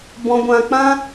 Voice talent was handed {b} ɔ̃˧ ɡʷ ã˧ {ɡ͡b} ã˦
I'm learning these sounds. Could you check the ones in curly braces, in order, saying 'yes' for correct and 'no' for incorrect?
yes, no

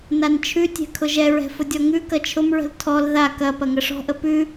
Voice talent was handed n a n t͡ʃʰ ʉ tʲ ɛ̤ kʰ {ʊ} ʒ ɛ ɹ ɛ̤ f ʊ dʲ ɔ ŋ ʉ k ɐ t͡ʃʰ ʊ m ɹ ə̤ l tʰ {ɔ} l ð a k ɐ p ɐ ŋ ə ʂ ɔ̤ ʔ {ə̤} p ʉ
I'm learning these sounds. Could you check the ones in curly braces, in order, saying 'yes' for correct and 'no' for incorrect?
yes, yes, no

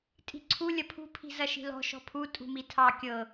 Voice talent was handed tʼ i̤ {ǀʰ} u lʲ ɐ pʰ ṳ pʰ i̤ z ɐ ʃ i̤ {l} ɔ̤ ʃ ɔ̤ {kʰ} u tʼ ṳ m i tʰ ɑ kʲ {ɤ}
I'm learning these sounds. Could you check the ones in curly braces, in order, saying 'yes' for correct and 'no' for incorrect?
yes, yes, no, yes

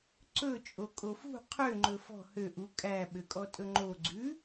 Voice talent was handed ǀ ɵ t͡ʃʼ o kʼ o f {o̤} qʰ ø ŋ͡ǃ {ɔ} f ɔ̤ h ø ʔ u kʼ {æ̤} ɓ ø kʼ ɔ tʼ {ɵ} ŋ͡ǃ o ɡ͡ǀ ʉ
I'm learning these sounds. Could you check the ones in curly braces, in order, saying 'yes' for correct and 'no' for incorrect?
no, no, no, yes

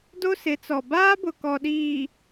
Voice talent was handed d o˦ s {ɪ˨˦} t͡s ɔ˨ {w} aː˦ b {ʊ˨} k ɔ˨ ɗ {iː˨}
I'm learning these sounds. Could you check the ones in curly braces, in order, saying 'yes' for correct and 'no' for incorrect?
yes, no, yes, yes

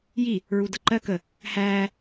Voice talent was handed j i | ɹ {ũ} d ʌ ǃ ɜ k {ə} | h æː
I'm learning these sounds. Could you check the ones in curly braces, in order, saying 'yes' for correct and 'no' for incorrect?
no, yes

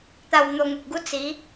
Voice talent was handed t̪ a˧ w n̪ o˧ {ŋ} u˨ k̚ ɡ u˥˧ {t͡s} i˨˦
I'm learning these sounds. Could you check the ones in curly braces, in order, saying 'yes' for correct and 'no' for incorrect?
yes, yes

